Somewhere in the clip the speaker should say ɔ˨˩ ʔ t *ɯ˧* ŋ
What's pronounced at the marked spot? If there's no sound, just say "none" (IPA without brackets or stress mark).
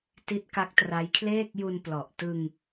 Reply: ɯ˧